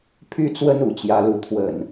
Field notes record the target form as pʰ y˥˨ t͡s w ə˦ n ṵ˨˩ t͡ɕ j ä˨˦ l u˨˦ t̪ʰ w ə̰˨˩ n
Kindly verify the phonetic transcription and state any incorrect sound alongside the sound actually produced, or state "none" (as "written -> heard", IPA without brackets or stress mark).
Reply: none